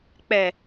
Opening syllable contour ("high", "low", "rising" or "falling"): low